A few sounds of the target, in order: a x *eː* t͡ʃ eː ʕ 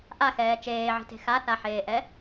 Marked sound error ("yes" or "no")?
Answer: yes